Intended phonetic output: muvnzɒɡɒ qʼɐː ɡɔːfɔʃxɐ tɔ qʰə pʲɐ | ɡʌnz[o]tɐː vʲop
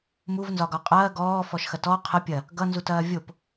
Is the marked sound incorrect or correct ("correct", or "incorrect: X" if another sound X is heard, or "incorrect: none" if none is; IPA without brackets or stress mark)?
incorrect: u